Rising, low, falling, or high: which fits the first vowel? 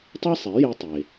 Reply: high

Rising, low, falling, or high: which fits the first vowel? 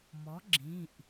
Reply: rising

